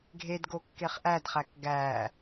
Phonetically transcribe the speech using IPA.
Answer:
ɡʱ e d ɡ o kː e χ ʔ æ d χ æ k ɡ æː

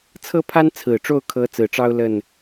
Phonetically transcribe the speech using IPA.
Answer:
t͡sʰ ɤ˥ pʰ a˥ n t͡sʰ ɹ̩˨˩ ʈ͡ʂ o˥˩ ʊ̯ kʰ ɤ˧˥ t͡s ɹ̩˨˩ ʈ͡ʂ ɑ˥ ʊ̯ l ə˥˩ n

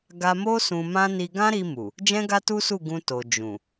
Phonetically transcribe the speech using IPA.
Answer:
ɡ a˧ m o˦ s ũ˧ m ã˦ n i˧ ɡ ã˦ ɾ i˧ m u˨ | d͡ʒ ɛ̃˦ ɡ a˦ t u˦ s u˦˨ ɡ ũ˧ t o˨ d͡ʒ ũ˨

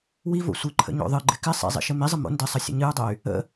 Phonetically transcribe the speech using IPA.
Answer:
w i v o̰ sʷ ɨ ǃʰ ə̰ ɲ o̰ ðˤ ɨ ɡ͡ǃ ɪ k ɪ sˤ ḭ zˤ ḭ ʃ ɘ m i zˤ ə m o̰ n d ɘ sˤ ə sʲ ə̰ ɲ ɨ u̯ dˤ ɘ y̯ | ə̰

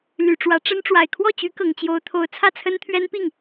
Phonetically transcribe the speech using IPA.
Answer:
l y˨˩ ʈ͡ʂ w ä˧˥ ʈ͡ʂ ə˥ n ʈ͡ʂ w a˨˩ ɪ̯ kʰ w ɔ˥˩ t͡ɕ y˧˥ k ɤ˨˩ ŋ t͡ɕ j o˧˥ ʊ̯ t̪ʰ o˧˥ ʊ̯ t͡sʰ ä˥˩ t͡sʰ ə˥ n t̪ʰ ɥ ɛ˥ n p i˥˩ ŋ

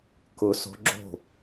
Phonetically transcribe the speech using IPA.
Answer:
k ʊ s o̤ ɡ͡ǁ o̤

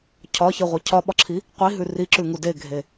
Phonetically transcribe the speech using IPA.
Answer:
cʰ ɒ ç i ʁʷ i cʰ ɒ ɓ ɒ ǁʰ i | qʷ i ɦ ʉ r i ǁ ʉ ŋ u d e ɡʱ e

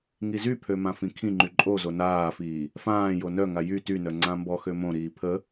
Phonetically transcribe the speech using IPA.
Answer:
ŋ i z y pʰ ø m ã f ĩ kʰ ĩ ŋ͡ǃ y ǃʼ o z o n aː f iː | f ãː j o n œ ŋ a j y t y n œ ŋ͡ǀ ã m b ɔ x ø m õ ɾ iː pʰ ə

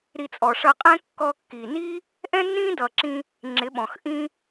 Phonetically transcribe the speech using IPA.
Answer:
ɾ i˧ t͡sʼ ɔ˨ ʂ ʌ˧ qʼ ɛ̃˦ kː ɔ˧ kː i˨ n iː˦ | ʔ ɛ̃˦ nː ĩː˦ d ʌː˨ ǁ ĩ˧ | ŋ͡ǁ ɪ˨˦ ɓ ɔ̃˨ x ʔ ĩ˦

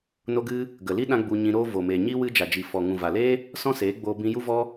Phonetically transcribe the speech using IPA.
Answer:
n o˧ ɡ ɨ˧ | ɡ ə˨ l i˦ ɗ ã˦ ɡ͡b u˧ ɲ ĩ˧ ɾ oː˦ v o˨ m eː˨ ɲ iː˦ w ɨ˧ d͡ʒ a˨ d͡ʒ i˨ f ɔ˨ ŋ ũ˨ v a˨ l eː˦ | s ɔ̃˦ s eː˨˦ ɡ͡b oː˧ b ĩ˧ j u˦ v ɔ˦

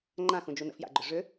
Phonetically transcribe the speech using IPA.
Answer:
ŋ͡ǃ ã x ũ d͡ʒ u n ə̰ f j a̰ ɡ͡ǃ ʏ ʐ ʏ

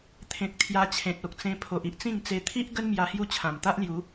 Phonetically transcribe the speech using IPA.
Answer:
t̪ʰ ẽ˨ k̚ t̪ʰ j a˧ t͡ɕʰ ẽ˨ t̚ o˨ k̚ t͡s ẽ˧ pʰ o˨ ʔ i˨ ʔ t͡s ĩ˥˧ ŋ t͡s e˧ t̪ʰ i˦ ʔ ɡ ə˦ n m j a˧ h j u˦ t͡ɕʰ ã˨˩ m t̪ a˦ ʔ l j u˨˦

